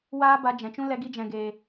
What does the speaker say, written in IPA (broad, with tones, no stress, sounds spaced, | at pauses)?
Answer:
w aː˦ b a˧ d͡ʒ ɛ̃˨ t͡ʃ ũ˦ l ɛ˧ ɡ i˦ d͡ʒ ɛ̃˨ ɡ eː˨